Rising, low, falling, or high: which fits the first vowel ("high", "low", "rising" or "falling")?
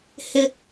high